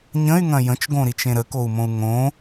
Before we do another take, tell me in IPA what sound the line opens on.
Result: ɲ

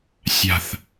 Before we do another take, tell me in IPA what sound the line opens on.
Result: sʲ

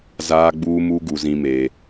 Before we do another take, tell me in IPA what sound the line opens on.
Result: z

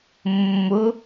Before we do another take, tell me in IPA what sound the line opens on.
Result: mː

